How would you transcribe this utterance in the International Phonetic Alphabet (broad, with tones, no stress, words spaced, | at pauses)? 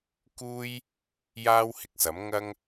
kuː˥j | jaː˥whɪ˨k̚sɐ˨˥m ŋɐ˥ŋ